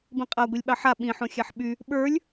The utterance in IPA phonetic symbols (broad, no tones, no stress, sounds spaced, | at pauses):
b ĩ qʼ a ɡʷ i lʲ ɓ ɑ ħ a ɓ ĩ ħ õ xʲ a ħ ɓ y | ɓ ə˞ lʲ